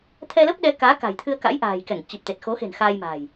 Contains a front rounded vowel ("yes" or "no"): no